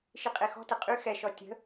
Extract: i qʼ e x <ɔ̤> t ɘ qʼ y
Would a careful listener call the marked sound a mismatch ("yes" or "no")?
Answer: no